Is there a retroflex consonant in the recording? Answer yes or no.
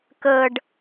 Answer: yes